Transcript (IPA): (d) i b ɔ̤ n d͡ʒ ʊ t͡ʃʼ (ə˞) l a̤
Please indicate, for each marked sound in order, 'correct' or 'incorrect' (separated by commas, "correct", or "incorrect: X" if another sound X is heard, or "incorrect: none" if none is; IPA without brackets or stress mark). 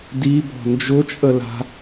correct, incorrect: ə